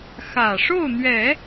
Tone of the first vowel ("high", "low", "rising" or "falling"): low